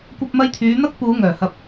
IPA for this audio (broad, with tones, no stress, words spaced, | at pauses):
kʷɐ˧p̚mɐ˧jt̪ʰyː˨˧ n̪ɐ˥k̚puː˨˧ ŋœː˨˩hɐ˧p̚